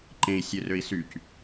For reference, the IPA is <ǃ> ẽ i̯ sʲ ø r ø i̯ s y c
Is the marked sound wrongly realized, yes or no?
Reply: no